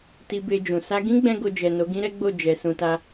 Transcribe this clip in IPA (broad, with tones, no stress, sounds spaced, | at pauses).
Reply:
t i˧ b e˧ d͡ʒ ũ˨ s a˧ ɡ ĩ˦ ɡ͡b ɛ̃˦ ɡ o˧ d͡ʒ ɛ˨ n o˨˦ ɡ ĩ˦ ɾ ɛ˦ ɡ͡b o˦˨ d͡ʒ ɛ˨ s ũ˧ t a˦